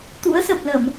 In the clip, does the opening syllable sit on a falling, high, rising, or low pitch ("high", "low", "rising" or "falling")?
rising